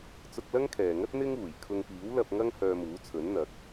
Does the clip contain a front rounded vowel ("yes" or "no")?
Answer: yes